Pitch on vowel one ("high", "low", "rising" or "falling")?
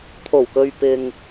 low